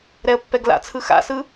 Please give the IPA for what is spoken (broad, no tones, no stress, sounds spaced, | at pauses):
ɾ ɛ ə̯ pː ɛ ɡ l a̰ t͡sʰ ɯ x a̰ s ɯ